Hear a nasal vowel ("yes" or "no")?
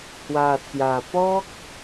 no